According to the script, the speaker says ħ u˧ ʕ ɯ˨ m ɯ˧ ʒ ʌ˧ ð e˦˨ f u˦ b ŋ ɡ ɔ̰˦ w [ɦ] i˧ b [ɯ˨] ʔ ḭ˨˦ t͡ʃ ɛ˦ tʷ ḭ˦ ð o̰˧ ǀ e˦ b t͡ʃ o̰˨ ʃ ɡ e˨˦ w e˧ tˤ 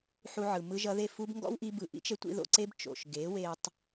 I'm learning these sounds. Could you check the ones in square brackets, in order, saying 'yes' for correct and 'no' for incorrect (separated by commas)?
no, yes